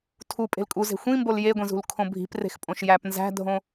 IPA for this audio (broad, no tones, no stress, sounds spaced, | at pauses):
tʰ u pʼ e̤ l kʼ u z e̤ xʷ ĩ m b o l j e ɡʷ ĩ z ṳ l kʰ õ bʱ i̤ p r e̤ x pʼ õ ʃ j æ p n z æ̤ dʱ õ